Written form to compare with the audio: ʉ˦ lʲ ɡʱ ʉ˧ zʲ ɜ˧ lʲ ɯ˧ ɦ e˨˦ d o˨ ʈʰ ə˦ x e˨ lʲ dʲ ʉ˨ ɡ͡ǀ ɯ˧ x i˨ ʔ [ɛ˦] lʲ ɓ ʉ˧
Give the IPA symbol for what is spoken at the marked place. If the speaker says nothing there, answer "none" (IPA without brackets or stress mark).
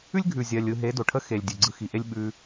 e˦